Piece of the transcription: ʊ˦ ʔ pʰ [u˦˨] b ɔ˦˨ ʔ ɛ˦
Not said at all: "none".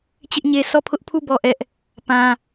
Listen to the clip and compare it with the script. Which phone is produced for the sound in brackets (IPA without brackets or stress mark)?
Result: u˦˨